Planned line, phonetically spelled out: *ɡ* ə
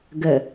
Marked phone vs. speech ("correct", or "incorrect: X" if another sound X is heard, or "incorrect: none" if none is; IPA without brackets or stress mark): correct